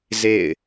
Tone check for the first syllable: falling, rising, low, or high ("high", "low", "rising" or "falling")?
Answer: falling